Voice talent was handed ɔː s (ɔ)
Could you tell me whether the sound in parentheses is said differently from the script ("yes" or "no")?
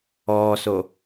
yes